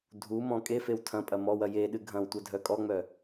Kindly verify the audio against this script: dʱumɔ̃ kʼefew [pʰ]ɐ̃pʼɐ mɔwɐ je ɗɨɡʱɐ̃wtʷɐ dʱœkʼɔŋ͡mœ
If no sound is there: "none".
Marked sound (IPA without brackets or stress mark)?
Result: tʰ